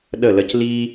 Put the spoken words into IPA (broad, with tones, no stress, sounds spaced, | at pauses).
ɗ ə˦˨ l ə˧ c l iː˧